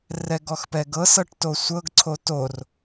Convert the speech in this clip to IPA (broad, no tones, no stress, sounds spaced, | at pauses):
r ɛ ɡ ɔ x p ɛ ɡ ɤ s ɤ ʈ t o sʷ ɤ ɡ ǀʰ o t o r